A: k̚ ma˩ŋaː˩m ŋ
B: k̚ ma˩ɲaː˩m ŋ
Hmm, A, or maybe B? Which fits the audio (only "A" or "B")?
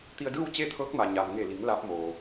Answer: B